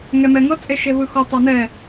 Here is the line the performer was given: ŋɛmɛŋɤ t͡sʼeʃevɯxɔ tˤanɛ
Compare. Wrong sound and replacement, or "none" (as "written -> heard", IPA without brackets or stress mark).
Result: none